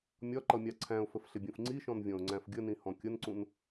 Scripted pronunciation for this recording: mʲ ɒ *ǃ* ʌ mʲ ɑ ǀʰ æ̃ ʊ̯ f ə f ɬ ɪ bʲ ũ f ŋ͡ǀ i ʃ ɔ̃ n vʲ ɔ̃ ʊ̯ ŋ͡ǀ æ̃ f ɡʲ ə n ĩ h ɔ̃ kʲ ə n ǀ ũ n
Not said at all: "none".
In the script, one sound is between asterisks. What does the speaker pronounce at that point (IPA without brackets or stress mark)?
ǃ